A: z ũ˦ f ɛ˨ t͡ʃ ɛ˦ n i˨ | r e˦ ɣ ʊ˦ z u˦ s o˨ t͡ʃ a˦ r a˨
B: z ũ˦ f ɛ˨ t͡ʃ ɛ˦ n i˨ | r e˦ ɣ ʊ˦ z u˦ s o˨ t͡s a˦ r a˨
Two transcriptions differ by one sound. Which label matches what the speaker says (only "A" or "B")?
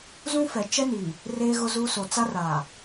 B